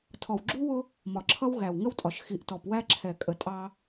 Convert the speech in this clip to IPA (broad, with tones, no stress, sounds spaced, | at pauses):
tʰ ɔ˨ w ɡ͡ǁ u˦ w ʊ˦ | m ɒ˨ ǁʰ ʌ˦ w ɣ æ˨ w ŋ ə˦ w tʼ ɒ˨ ʃ x i˨ ʔ t ɔ˨ p w æ˦ ǁʰ ɛ˨ kʼ ə˨ tʼ ɑ˦